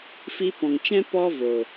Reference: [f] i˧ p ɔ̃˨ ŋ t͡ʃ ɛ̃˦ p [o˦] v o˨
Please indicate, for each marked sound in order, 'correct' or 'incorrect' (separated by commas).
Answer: correct, incorrect